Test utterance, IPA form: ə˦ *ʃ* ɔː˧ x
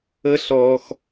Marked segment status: incorrect: ɬ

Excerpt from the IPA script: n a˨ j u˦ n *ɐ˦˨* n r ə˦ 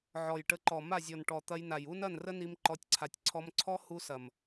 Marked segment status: correct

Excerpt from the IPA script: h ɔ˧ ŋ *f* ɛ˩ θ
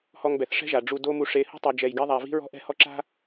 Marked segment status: incorrect: b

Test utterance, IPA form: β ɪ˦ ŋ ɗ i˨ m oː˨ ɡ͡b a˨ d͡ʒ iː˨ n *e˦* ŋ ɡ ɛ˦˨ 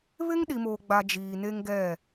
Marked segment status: correct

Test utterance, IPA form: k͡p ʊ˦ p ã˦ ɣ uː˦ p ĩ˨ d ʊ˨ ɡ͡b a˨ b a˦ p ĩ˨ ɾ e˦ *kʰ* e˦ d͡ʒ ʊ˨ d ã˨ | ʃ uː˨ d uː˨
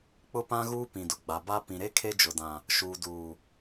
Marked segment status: correct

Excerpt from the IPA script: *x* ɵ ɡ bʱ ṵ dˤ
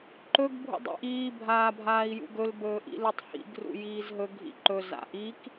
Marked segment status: incorrect: ǃ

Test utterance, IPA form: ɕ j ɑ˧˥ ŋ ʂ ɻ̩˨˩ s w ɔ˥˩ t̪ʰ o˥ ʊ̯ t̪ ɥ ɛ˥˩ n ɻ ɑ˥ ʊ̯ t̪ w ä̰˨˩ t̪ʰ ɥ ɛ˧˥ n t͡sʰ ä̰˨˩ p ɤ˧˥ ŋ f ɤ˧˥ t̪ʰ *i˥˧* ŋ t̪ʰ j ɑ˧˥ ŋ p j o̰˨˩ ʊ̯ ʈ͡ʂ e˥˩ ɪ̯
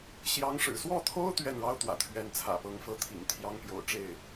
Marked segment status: incorrect: ḭ˨˩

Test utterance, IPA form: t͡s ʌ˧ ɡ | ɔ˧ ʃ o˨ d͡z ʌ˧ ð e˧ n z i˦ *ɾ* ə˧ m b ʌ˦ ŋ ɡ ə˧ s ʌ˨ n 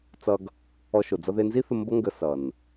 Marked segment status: incorrect: θ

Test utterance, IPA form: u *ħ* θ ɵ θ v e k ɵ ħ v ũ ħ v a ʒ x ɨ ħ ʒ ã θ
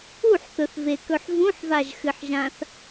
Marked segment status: correct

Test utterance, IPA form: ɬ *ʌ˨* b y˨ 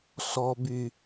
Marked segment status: incorrect: ɔ˨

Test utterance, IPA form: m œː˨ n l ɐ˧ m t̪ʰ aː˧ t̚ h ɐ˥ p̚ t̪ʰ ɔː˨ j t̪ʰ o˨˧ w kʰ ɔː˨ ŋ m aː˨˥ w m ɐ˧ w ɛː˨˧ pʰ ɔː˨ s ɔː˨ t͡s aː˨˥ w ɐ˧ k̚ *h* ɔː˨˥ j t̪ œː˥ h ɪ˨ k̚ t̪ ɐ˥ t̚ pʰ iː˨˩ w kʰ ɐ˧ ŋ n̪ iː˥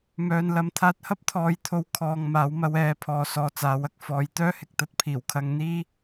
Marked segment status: incorrect: f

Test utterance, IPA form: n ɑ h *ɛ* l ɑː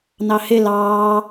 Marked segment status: incorrect: ɪ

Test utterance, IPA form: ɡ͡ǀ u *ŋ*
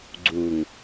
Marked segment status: correct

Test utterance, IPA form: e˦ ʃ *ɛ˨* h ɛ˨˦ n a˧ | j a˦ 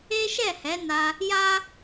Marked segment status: incorrect: ɛ˦˨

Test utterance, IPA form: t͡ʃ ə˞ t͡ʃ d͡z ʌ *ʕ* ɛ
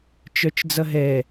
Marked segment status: incorrect: ɦ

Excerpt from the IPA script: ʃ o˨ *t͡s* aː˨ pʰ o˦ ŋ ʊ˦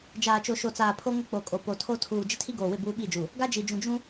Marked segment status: correct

